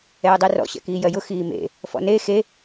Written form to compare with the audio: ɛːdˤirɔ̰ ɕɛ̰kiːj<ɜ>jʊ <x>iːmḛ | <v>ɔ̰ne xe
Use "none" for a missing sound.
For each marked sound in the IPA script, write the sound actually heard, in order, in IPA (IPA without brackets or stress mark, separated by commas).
ɜ, x, f